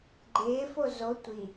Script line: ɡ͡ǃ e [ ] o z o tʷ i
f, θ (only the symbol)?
f